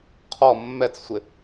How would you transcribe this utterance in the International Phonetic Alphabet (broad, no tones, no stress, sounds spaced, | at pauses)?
qʰ ɔ mː ɛ t͡s sʷ ɪ